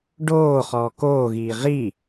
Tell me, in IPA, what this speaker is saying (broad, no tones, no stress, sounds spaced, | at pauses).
ɖ oː χ ɔː k oː ɣ iː ʁ i